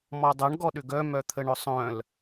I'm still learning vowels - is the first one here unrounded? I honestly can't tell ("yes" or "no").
no